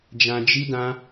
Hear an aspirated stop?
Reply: no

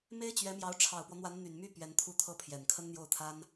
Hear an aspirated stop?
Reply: yes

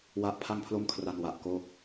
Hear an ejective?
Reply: no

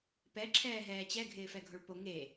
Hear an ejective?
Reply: no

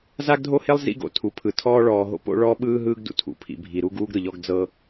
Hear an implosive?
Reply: yes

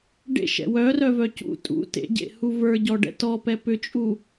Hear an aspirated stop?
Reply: no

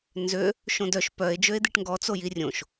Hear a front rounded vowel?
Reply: yes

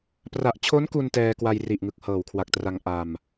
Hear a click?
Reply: no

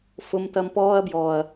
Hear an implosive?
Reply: no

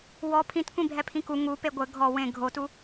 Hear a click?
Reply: no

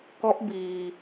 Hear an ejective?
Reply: no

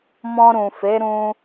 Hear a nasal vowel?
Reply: yes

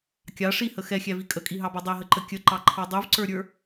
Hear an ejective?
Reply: yes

